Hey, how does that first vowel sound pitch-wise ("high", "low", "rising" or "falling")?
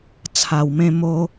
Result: low